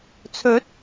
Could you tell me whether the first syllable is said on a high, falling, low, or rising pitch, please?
rising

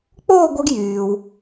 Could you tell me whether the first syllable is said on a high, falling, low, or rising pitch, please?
falling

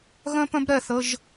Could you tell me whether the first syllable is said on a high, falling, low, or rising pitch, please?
high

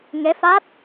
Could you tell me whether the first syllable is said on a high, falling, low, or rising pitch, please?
rising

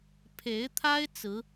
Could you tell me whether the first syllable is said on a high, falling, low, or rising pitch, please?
rising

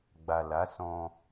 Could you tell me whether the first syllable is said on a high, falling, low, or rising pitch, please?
low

